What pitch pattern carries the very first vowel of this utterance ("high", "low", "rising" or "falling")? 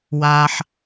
low